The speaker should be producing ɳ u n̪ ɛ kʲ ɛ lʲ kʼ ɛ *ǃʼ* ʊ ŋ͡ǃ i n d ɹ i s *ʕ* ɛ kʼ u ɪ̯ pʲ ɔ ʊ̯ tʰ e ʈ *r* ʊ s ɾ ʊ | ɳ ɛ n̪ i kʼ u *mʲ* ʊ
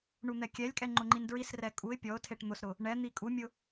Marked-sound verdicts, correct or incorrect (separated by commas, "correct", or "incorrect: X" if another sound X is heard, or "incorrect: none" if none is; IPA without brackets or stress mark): incorrect: ŋ͡ǃ, incorrect: r, incorrect: n̪, correct